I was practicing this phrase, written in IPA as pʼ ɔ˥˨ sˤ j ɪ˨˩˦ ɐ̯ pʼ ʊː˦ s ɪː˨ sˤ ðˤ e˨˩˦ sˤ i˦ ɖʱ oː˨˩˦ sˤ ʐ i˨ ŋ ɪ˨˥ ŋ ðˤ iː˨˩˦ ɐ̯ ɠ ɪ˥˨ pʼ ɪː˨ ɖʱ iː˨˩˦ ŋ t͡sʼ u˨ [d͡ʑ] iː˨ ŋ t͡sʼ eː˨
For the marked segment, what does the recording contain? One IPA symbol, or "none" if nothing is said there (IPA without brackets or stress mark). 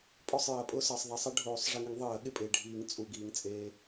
ɡ